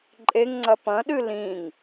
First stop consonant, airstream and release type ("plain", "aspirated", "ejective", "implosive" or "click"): click